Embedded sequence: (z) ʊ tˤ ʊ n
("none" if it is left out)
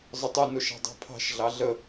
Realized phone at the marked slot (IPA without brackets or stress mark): zˤ